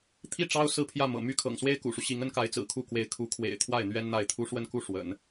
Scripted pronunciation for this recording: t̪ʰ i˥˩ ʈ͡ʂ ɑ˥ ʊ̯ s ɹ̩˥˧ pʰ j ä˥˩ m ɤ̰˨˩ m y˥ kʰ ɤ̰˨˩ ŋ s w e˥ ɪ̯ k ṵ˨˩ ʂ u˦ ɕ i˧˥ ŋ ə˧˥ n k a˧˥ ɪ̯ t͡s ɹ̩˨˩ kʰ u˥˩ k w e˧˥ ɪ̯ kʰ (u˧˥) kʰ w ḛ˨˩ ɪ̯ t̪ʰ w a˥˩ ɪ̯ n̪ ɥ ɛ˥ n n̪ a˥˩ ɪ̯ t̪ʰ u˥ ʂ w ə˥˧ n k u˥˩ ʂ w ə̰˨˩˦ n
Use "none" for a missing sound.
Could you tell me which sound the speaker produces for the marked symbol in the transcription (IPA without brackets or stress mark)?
u˧˥